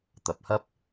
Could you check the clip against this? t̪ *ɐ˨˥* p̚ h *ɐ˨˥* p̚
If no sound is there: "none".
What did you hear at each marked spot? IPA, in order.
ɐ˨˥, ɐ˥

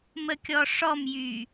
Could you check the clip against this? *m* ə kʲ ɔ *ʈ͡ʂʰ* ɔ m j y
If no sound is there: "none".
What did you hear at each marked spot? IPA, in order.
m, ʂ

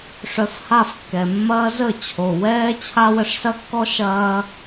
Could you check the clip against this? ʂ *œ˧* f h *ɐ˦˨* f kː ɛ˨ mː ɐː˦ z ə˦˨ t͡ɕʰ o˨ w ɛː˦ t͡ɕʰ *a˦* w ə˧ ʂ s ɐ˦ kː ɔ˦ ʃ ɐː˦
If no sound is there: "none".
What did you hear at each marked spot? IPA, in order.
œ˧, a˦˨, a˦

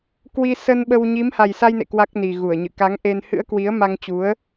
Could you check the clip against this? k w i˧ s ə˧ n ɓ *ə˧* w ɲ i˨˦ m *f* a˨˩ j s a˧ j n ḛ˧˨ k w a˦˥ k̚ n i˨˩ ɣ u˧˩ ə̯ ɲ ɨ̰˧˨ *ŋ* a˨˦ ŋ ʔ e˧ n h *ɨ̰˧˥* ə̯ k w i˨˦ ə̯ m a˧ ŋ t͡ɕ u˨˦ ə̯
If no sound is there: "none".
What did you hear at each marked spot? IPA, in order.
ə˧, h, k, ɨ̰˧˥

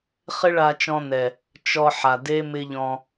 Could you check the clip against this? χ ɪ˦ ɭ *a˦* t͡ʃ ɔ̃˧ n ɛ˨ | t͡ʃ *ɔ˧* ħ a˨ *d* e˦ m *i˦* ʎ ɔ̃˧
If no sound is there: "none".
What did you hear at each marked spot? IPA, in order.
a˧, ɔ˧, d, ɪ˦

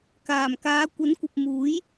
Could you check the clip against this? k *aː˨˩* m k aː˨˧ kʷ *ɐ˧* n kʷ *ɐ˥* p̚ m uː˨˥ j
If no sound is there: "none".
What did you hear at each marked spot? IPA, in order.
aː˨˩, ɐ˨˥, ɐ˨

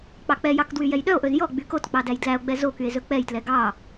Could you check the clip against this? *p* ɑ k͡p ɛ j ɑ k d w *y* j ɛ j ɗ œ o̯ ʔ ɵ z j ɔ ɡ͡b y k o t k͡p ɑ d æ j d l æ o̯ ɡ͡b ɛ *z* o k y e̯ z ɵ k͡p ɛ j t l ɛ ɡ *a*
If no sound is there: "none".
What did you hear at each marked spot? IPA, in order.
k͡p, y, z, ɑ

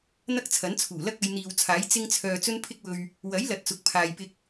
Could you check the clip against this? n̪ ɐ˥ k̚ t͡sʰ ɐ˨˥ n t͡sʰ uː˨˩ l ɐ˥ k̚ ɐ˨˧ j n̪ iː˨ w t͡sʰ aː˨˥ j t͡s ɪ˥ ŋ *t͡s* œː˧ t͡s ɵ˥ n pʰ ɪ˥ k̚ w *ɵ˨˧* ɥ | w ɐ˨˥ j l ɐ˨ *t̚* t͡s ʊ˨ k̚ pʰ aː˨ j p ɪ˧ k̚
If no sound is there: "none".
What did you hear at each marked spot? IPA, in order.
t͡sʰ, ɵ˧, t̚

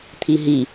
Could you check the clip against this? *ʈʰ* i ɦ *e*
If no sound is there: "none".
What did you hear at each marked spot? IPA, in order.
t̪ʰ, i

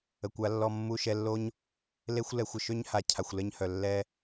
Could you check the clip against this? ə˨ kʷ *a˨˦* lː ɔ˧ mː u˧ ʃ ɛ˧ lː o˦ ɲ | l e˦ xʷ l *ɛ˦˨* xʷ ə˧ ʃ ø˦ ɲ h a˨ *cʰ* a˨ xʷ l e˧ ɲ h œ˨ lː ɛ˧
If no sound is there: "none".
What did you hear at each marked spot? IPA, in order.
a˨˦, ɛ˧, cʰ

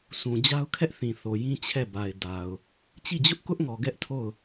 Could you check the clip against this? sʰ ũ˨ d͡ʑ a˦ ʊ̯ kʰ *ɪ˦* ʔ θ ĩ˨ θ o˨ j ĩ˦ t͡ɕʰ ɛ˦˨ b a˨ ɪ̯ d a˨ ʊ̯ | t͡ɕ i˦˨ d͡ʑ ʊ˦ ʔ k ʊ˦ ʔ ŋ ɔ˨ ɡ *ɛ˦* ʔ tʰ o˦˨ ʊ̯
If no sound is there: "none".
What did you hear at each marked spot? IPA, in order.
ɛ˦, ɛ˦

